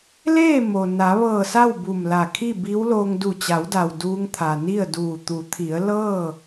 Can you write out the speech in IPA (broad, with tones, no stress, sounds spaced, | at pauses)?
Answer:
l eː˥˨ m o˩ n a˩˧ ʋ ɤː˧˩ s a˥˨ w b u˧˩ m l a˧˩ kʰ i˥˨ b iː˧˥ w l oː˧ ŋ d u˧˩ t͡ɕ a˩˧ w d a˩ w d uː˧ ŋ t̪ʰ a˩ n i˥˨ ə̯ d uː˧˩ t̪ u˩˧ t̪ʰ i˩˧ ə̯ l ɤː˥˨